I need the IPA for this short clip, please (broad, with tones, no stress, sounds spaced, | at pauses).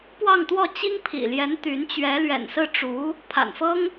p w ɑ˥˧ ŋ t̪ w ɔ˥˩ t͡ɕ i˥ ŋ pʰ ḭ˨˩ l j ɛ˧˥ n t̪ y˧˥ n t͡ɕ ɥ ɛ˧˥ l ɥ ɛ̰˨˩ n s ɹ̩˥˩ ʈ͡ʂ u˧˥ | pʰ a̰˨˩ n f ɤ˥ ŋ